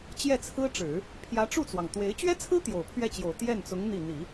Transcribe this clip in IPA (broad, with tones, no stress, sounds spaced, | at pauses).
t͡ɕ j ɛ˥˩ t͡sʰ ɹ̩˥ ʈ͡ʂ ɻ̩˨˩˦ | pʰ j ä˧˥ ʈ͡ʂ u˥˩ t͡s w ɑ˩ ŋ t̪ w e˧˥ ɪ̯ t͡ɕ ɥ ɛ˥ t͡sʰ ɹ̩˥ t̪ j o˨˩ ʊ̯ pʰ ɥ ɛ˥˩ t͡ɕ j o˨˩ ʊ̯ t̪ j ɛ˥˩ n t͡s ʊ˧˥ ŋ n̪ i˥˩ n̪ i˨˩˦